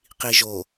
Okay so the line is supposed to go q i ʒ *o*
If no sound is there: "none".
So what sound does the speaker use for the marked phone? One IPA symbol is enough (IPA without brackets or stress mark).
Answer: o